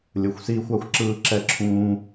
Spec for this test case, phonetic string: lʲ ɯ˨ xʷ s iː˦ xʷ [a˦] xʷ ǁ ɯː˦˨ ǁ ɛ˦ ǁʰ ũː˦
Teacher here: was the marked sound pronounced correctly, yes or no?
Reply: yes